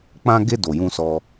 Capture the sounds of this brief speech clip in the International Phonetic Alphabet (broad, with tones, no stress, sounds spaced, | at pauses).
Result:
k͡p ã˧ ɡ e˧ d o˨ j ũ˧ s ɔ˧